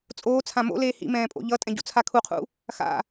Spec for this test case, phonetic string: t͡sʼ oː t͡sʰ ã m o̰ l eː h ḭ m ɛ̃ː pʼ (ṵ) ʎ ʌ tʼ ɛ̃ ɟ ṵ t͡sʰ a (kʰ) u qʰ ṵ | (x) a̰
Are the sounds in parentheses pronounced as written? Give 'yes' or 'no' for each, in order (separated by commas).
no, yes, yes